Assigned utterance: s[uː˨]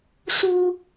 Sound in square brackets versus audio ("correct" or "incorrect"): incorrect